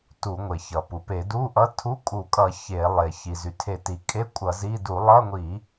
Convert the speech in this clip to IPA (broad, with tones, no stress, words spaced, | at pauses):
tu˧˩˧ŋʷe˩çʌ˩ pu˩pe˧˩˧du˧˥˧ʔʌ˧˥˧ tʰu˧˥˧kʼu˧˩˧kʼʌ˧˩˧ çe˧˩˧lˠe˩ çi˩zy˩ tʰe˧˩˧ti˩ kʼe˧˥˧ kʷʼʌ˧˩˧zi˧˥˧ du˧˩˧lˠʌ˧˥˧ŋʷi˧˩˧